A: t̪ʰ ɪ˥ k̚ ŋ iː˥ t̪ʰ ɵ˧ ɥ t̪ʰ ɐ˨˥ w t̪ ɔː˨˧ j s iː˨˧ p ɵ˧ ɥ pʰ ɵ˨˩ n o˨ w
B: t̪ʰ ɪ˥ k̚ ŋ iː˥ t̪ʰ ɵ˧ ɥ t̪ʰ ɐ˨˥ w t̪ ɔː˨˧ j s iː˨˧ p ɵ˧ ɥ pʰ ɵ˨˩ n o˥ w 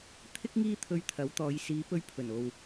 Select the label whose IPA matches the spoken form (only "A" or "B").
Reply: A